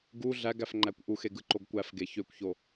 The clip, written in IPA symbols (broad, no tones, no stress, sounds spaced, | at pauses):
ɡ u ɮ æ ɡ æ f ŋ͡ǃ æ kʷ ʔ u x e ɡ ɯ ǃ o ɡ kʷ æ f ɡ e ç ø kʷ ç o